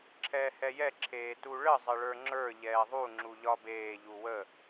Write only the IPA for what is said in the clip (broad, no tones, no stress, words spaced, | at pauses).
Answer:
ǁʰɛːhɛjɛ ǁʰeːtuɭə zˤɘɭə˞ŋ͡ǁə˞ ʎɛːðˤu ŋ͡ǁuʎɒbeː ʎuwə